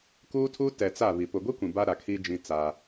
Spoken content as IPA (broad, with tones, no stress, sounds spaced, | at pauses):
k uː˦ tʰ u˦ t ɛ˨ t͡s a˦˨ β i˨ p ʊ˨ ɡʷ i˦ kʷ ĩ˨ b a˦ ɾ a˨ kʰ i˦ d͡ʒ ĩ˦ t͡s a˦